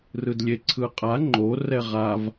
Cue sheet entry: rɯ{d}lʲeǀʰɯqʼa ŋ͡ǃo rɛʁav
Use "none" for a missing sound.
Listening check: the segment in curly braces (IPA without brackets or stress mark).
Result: d